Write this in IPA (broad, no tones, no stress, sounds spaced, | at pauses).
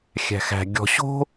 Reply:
xʲ æ̤ x æ̤ ɡʲ ɔ̤ ɕ o̤